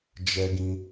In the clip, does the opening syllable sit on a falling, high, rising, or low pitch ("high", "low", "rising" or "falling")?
high